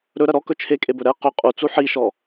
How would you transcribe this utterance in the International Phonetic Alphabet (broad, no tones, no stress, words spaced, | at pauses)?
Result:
ɾɵɾɐ ɾɔkɵ t͡ʃʰekʼebɵ ɾɛ qɵ qʼut͡su ħiʃɔ